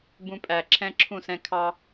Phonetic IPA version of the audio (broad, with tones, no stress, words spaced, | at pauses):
bũ˧pʼæ˨ ǁʰɛ̃˦ ǁʰũ˦˨s ɛ̃˧kʰɑ˦